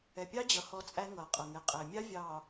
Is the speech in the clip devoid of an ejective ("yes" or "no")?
no